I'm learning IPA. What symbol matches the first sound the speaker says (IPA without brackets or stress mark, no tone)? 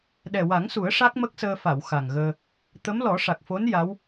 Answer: ɗ